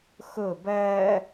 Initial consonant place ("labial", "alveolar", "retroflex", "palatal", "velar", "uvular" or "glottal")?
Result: velar